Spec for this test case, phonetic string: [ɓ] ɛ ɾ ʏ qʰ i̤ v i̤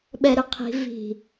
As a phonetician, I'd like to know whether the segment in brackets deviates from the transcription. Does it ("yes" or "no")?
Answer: no